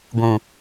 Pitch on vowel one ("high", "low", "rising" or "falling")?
low